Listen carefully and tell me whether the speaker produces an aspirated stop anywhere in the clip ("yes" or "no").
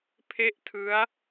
yes